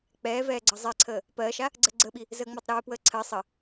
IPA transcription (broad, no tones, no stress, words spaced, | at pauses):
k͡pɛːvɛː ɡ͡ǀʌzˤɛǀʰəː | pɜːʃa | ɡ͡ǀɜɡ͡ǀəɓi | zəːŋ͡məːtˤɾɛːpwəː ǀʰɜ sˤə